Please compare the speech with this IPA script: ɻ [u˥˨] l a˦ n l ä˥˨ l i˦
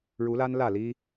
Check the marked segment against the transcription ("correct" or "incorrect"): incorrect